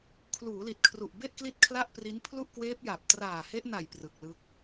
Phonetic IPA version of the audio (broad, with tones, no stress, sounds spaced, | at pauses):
kʰ l uː˩˦ l i˨˩ t̚ kʰ r u˨˩ ʔ b e˥˩ ʔ k l i˥˩ t̚ kʰ l a˥˩ ʔ p r i˦˥ n pʰ l u˥˩ ʔ k w eː˦˥ p̚ j a˨˩ p̚ t r aː˨˩ h e˦˥ ʔ n a˨˩ j p r ɯ˨˩ k̚ l ɯ˦˥ k̚